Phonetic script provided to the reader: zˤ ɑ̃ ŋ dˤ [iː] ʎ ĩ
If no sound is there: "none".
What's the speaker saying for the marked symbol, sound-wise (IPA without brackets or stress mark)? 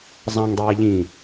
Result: iː